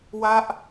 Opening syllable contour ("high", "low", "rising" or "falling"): falling